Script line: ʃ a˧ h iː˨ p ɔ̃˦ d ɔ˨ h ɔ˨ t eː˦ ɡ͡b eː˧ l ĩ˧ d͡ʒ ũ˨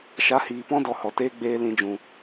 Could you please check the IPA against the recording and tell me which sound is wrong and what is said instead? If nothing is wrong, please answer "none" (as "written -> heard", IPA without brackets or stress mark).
none